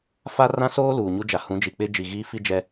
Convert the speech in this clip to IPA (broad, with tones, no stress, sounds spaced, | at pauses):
f a˦ r ã˦ s oː˦ l uː˨ ɲ u˦ d͡ʒ a˨ h ũ˨˦ d͡ʒ i˨ k͡p ɪ˦ d͡ʒ i˨ ɣ iː˦ f i˦ d͡ʒ ɛ˦